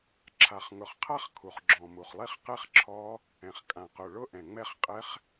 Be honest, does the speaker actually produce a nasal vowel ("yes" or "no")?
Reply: yes